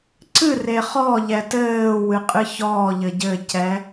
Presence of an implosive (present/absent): absent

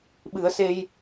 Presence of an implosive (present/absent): present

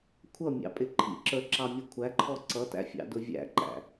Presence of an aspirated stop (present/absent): present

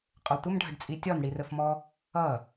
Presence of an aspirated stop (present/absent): absent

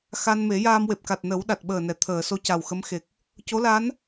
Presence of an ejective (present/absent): absent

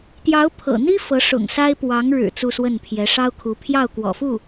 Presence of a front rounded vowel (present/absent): absent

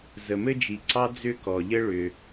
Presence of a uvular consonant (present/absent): absent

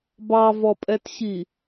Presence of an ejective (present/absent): present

